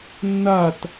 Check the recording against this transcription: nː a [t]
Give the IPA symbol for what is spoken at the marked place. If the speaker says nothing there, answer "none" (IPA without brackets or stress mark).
t